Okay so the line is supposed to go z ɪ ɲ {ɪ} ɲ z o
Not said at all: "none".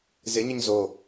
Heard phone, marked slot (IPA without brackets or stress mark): ɪ